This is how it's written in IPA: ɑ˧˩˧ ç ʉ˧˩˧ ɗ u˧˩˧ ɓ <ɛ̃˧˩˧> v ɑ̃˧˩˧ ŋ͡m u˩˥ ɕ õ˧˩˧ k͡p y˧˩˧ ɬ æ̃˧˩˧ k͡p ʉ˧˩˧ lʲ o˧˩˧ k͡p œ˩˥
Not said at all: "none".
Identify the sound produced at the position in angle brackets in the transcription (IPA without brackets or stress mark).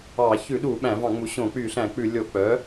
æ̃˧˩˧